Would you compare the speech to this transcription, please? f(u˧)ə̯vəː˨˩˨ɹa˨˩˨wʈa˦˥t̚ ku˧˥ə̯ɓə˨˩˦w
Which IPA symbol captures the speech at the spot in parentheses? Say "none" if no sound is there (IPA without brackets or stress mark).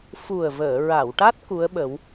u˨˩